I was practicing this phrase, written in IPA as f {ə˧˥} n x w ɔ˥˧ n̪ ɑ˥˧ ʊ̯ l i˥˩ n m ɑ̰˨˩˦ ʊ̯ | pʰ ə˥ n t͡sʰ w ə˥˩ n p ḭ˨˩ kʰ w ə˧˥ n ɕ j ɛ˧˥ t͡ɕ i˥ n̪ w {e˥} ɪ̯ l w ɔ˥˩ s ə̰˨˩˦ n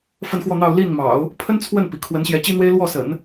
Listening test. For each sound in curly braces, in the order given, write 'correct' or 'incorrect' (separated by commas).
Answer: incorrect, correct